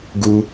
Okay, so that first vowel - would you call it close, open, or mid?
close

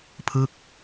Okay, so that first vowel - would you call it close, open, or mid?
close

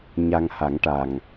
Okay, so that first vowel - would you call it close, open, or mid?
open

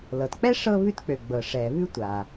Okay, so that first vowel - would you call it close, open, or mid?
mid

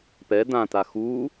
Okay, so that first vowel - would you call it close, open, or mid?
mid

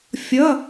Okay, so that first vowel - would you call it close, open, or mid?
mid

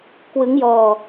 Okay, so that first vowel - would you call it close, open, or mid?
close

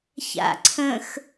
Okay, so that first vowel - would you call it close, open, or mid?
open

